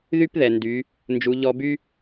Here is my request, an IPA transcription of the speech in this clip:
ðy˥pðɛ˩ ndy˩˧ | nd͡ʒu˩˧ʎɔ˧by˥

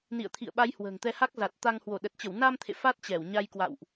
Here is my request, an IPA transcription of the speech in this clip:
nḭ˧˨ə̯t̪ʰḭ˧˨ə̯ɓa˨˦j hwə̤ː˨˩ŋt̪ɛ˧ha˦˥k̚ za˨˩t̚ t̪a˧ŋ hwo˧˩ɗə˨˩t̚t͡ɕə˧˩w na˧mt̪ʰḛ˧˨ fa˦˥t̚t͡ɕɛ˧˩w ɲa˧jkwa̰˧˨wʔ

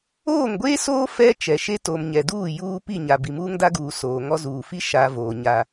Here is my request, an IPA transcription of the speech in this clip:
oː˦˨ŋɡʷeː˦soː˦ fɛ˦ t͡ʃɛ˨ʃe˦ to˨mɲɛ˨duː˦˨ juː˦ pi˦˨ɲa˨ bi˨muː˦ŋda˦ɡuː˨ soː˨ŋɔ˦ zuː˨fi˦ ʃa˨ voː˨ ɲa˦

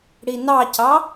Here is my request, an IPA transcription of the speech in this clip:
ɽinɑcɑ

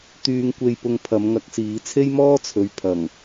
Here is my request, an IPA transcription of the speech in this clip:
t̪yː˧ŋkʷe˧jpʊ˧ŋ pʰɐ˨˧mŋɐ˨˥k̚siː˨˧ t͡sʰe˥jmɔː˥ t͡sʰɵ˨˧ɥpʰɐ˨˩ŋ

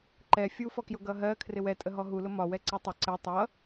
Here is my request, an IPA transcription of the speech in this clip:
ǃɛ fʲufɔkjʊ ɡʌɦɜ kʰrɪwɛtʼə ɦɔɦulʊ mɒwɛ ǀɜtˤʊ ǀɛ tˤʌ

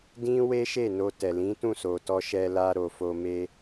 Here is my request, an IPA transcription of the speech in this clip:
dĩ˦ we˦ʃe˦˨ no˧tɛ˨ lĩ˨˦tũ˦˨so˨tɔ˧ ʃɛ˧la˧ ɾo˨ fo˧me˦

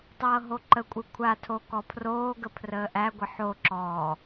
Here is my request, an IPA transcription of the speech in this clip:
tˤɤːɦoǃəkʷʼɯ kʷʰatʰo kɔpʰroːɡə pʰrəːʔæɡʷə ħoǁɔː

